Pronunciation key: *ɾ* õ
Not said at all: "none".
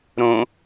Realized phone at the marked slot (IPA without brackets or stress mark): ɾ